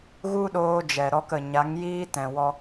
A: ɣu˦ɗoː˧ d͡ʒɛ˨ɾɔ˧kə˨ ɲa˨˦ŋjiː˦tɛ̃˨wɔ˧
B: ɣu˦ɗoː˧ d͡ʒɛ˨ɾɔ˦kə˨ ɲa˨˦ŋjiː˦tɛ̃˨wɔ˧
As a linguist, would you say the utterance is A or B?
A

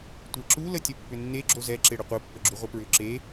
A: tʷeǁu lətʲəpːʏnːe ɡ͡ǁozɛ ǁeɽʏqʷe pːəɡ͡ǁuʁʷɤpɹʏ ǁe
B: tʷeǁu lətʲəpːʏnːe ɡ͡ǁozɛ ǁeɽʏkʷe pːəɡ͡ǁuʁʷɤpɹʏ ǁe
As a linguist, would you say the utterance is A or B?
A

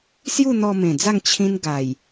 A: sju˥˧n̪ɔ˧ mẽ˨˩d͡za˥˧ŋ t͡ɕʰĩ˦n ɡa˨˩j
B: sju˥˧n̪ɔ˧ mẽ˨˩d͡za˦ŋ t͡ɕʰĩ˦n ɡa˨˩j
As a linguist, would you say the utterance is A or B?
A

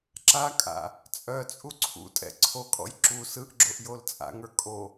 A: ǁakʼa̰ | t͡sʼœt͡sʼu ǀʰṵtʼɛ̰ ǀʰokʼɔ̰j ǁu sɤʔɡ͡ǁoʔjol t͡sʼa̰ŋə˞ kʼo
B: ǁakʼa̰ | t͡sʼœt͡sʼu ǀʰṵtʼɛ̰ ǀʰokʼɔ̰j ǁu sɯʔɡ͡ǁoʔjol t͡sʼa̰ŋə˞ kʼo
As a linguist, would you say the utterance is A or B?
B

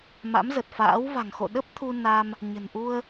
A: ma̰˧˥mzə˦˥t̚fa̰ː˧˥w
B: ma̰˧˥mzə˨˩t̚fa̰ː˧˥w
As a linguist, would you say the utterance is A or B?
B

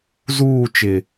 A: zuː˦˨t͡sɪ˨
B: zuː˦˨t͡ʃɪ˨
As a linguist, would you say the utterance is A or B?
B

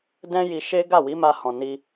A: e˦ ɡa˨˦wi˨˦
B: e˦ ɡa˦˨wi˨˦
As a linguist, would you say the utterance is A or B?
B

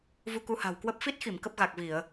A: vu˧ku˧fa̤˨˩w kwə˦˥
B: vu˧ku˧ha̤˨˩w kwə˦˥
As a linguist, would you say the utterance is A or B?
B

